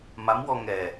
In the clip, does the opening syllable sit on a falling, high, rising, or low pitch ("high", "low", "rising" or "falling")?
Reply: rising